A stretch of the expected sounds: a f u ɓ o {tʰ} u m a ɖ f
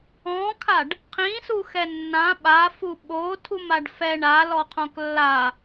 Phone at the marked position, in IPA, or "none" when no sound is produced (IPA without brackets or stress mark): tʰ